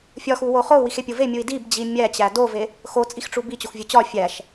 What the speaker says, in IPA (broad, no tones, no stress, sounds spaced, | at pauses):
fʲ ɒ x u w o χ o u̯ w i x e pʲ o v e mʲ u i̯ d i b d͡ʑ i mʲ æ t͡ɕ æ d o v e | x o t͡sʼ i x ʈ͡ʂ u b i t͡ɕ o x vʲ u t͡ɕ ɒ fʲ æ ʃ